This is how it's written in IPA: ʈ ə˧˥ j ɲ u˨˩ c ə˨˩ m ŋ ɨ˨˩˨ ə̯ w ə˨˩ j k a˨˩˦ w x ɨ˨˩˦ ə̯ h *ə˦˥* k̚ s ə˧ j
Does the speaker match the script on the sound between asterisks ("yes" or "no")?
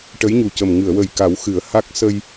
no